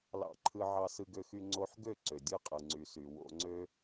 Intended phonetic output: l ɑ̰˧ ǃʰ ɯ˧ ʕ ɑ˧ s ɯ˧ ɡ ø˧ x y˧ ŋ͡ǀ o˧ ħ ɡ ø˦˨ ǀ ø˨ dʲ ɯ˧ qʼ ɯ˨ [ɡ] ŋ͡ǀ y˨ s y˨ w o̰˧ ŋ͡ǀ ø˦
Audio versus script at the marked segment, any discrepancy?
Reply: yes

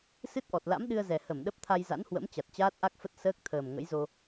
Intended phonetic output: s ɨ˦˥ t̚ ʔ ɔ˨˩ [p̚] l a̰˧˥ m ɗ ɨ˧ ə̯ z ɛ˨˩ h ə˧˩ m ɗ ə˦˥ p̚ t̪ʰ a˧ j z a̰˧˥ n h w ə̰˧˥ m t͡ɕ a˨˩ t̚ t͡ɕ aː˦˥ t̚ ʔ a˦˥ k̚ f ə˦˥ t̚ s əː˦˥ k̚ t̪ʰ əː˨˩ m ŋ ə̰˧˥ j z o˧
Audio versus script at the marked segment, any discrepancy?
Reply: yes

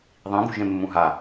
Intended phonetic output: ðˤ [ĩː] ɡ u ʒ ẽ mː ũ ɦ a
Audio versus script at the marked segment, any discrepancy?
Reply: yes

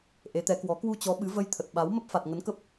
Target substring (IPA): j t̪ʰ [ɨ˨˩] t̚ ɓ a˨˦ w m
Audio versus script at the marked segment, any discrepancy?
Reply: yes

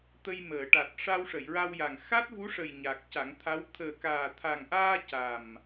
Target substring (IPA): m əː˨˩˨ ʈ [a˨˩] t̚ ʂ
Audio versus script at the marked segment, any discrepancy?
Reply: no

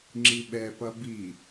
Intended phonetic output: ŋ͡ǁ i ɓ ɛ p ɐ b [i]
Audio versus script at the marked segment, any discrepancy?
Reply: no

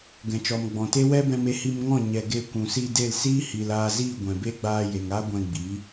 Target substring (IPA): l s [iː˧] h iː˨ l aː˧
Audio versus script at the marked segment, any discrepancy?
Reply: yes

